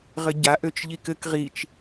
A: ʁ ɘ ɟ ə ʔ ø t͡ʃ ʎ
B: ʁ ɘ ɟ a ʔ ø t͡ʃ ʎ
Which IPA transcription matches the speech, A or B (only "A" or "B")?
B